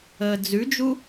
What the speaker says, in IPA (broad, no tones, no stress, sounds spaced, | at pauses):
əː d͡z ʉ d͡ʒ u